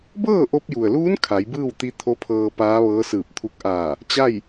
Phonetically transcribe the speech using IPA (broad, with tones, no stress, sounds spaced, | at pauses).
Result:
b ɤː˥˨ ʔ o˧ p̚ j u˩ ə̯ l uː˧˥ n kʰ a˩˧ j b ɯː˥˨ w t̪ i˧˥ t̪ʰ o˧˥ pʰ ɤː˧ p aː˧˥ ʋ ɤː˧˥ s ɯː˧˩ p̚ t̪ʰ u˧˥ k̚ ʔ aː˧˩ | t͡ɕ a˥˨ j